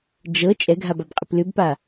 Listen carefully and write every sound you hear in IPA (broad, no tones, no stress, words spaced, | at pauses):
d͡ʒɤ t͡ʃʼɛɡʱababqʼɪp lʏbpa